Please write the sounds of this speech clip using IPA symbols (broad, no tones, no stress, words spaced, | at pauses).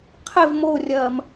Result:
qʰev morʲɐːm